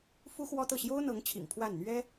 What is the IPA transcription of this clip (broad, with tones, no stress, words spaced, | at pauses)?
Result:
fu˥xwɔ˥t̪ɤ˥˩ ɕjo˥ʊ̯n̪ɤ˧˥ŋt͡ɕʰḭ˨˩ŋ pʰwa˥˩nn̪ɥɛ˥